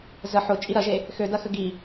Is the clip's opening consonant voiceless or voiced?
voiced